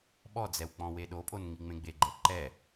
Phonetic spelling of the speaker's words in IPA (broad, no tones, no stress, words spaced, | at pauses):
ɓɔd͡zɛw k͡pɔ̃weɗopʼon ŋiŋ͡mẽɡ͡beɡ͡ǃɛ ǃɛ